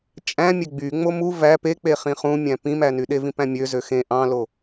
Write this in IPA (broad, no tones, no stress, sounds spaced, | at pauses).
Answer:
t͡ʃʼ æ̃ mʲ e ɡ͡b y ŋ͡m o m u v æ p e k͡p e χ ĩ χ ũ mʲ æ̃ p ĩ m æ n y ɗ e v ĩ p æ̃ mʲ ø z ø x ẽ ʔ ɑ̃ l o